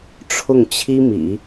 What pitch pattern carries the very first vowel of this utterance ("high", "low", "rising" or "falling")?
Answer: falling